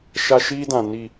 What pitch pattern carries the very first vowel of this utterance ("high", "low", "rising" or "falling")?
high